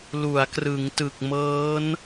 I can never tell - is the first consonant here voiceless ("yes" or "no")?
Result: no